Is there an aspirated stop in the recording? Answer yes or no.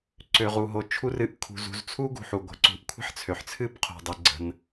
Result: yes